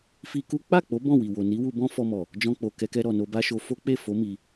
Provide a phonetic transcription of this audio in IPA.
fi˧ku˦ k͡pa˦˨k͡po˨˦ bɔ̃˦˨wi˨wo˨ ni˨˦wu˧bɔ̃˦ fɔ˧mɔ˨ | d͡ʒɔ̃˧k͡po˨kɛ˧kɛ˧ ɾɔ˨no˧ba˦ʃo˧ fo˦k͡pe˦˨ fo˨˦ mi˧

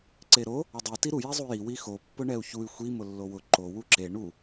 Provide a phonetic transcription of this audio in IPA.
ǀeɾo | ʊdˤe tiɾu jezˤuji wixo pːʊɳɛu̯çuy̯ xʷi mʊlːowʊ ǃo wuǁe ɳu

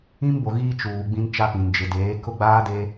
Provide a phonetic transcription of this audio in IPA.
ĩ˦mbo˨ ɣiː˦t͡ʃuː˨ ɡ͡bĩ˦nt͡ʃa˦pĩ˨n d͡ʒɪ˨deː˨˦ kʊ˦ɡ͡baː˦de˦

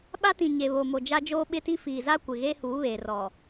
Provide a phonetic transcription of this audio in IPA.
ɓa˦tĩ˨ ɲe˨βo˨mo˨ d͡ʒa˦d͡ʒoː˦ɓɪ˦ti˦ fi˨za˦ kʷɪ˨ɣe˦huː˨˦βeː˨ rɔ˨

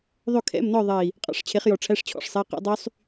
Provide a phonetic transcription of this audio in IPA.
ðˤɵ˥˨kʰɛ̰˧˥˧mnɔ˥˨ ðˤe˧˩i̯ | qʼɑ̰˧˥˧ʂt͡ɕʰe˨˥χjɔ˧˩ʈ͡ʂʰæ˧˥˧ʂ t͡ɕʰɔ̰˧˥˧ʂsˤɛ˧˥˧qɛ̰˦˥ dˤy˦˥sˤ

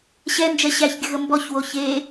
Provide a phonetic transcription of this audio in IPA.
ɕɛnd͡ʒɛ ɕæçɡʲəɣə mbɔçwo çe

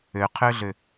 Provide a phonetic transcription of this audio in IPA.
øqʰøɮø

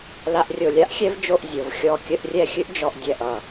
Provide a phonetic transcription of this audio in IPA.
la˧ʔrʲo˧˩lʲa˥ʔxʲɛ˥v d͡ʒo˥˧ʔzʲo˩˧v xʲɔ˧˩ kʲə˥˧ʔrʲɛ˥˧xʲɨ˥ʔ d͡ʒɔ˧ʔdʲɛ˧˩ʔʌ˧˩

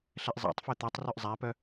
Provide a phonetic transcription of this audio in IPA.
ɬɛʔzˤæ̰tˤfø t̪ɛtˤ rʉʔzˤæpœ

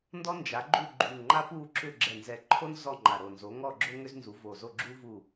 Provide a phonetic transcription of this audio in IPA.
ndɔ˥nd͡ʒa˨˥ ɡ͡ǃu˥˨ɡ͡ǃu˧˩ŋŋ͡ǃa˥ pu˥˨ǁʏ˥˨ ɡ͡ǁɛ˧˩nzɛ˧˩ǃʰo˥n zɔ˥˨ŋ͡ǃa˧˩ɾo˧˩nzo˨˥ ŋɔ˥˨ɡ͡ǁo˥ ŋʏ˥znzu˨˥vo˧˩zo˥˨ ɡ͡ǁu˥ vu˥˨

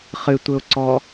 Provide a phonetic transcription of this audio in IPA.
χɨtʷɘʊ̯ǀɔ

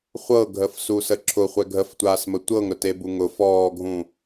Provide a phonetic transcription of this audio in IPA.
χʷɤɡʱəfsusə ǁʰʊχʷɛ ɡʱəftʷaːsmə tʷɤŋɾʊtebu ŋʊfɔːɡʱũ

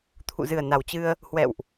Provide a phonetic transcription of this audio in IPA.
t̪ʰṵ˧˨zɨ˨˩ə̯ na˨˩wt͡ɕɨ˧ə̯ | hwɛ̰˧˨wʔ

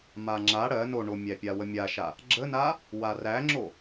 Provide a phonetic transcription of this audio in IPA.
maŋ͡ǁa ɽɜ noɳomʲæpʲa wəmʲaʃa | ɡ͡ǁəna | waræŋ͡ǁo

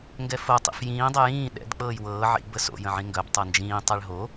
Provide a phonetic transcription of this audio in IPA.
ŋɡɛfo tˤḭfjĩː dˤɛjĩː ɗɛ̰d k͡pɤːjwɤː ʕḭ bəso̰ jə̃ʕĩŋɡœb tˤɤnd͡ʒĩː tˤɛɭɦo

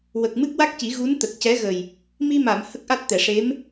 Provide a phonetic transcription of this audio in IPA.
wə˨˩k̚ mɨ˦˥k̚wa˦˥k̚ci˨˩˦ ɣu˧˥n t̪ə˨˩k̚cɛ˧˥ɣə˨˩j | mi˧ma˨˩˨m hə˦˥k̚ʔa˦˥t̚t̪ɛ˨˩ʂe˧˥m

